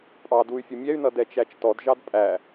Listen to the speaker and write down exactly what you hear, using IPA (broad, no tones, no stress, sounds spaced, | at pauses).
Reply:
pʼ ɑ d u y̯ fʲ ʊ mʲ ɛ y̯ n ʌ d ɛ t͡ʃ æ t͡ʃ t ɔ d ʒ ɑ d pʼ æ